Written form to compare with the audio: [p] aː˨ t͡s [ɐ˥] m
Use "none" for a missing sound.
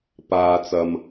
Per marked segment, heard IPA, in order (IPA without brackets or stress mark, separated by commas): p, ɐ˨